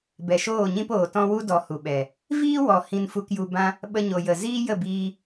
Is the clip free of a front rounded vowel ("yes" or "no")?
yes